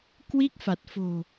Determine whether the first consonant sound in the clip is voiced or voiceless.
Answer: voiceless